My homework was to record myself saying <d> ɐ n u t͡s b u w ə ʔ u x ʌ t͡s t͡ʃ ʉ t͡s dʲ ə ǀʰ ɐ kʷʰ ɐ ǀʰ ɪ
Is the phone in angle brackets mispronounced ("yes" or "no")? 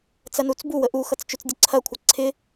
yes